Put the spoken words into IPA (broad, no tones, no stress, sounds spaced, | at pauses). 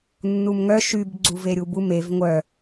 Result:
nː u m ŋ œ ʃ y b ɡ͡ǀ u v e ɾʲ u b u m e v ŋʷ œ